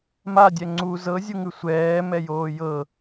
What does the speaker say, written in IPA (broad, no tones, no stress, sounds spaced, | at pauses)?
m a dʲ ɛ ŋ͡ǀ u z ɤ zʲ u ŋ ʉ sʷ ɛː m ɛ j oː j ɤ